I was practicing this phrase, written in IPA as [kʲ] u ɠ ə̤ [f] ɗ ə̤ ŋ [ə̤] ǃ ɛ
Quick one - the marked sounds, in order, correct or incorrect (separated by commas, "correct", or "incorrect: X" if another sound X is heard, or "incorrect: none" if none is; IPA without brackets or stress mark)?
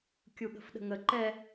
correct, correct, incorrect: ə